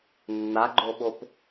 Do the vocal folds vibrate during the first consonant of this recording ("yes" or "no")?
yes